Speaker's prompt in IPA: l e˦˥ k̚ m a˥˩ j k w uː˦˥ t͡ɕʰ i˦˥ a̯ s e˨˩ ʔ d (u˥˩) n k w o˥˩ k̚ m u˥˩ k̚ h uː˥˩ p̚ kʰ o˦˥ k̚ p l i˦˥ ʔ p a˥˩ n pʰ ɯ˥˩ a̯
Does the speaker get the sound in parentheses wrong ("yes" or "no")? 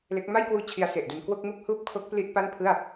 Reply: yes